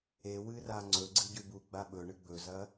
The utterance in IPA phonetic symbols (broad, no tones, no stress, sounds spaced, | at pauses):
e w ɨ r a ŋ͡ǀ ɵ ɡ͡ǀ ɨ ɟ ʉ b u ɡ͡b a ɓ ɵ ɳ ɨ ɡ͡b ɵ z ɐ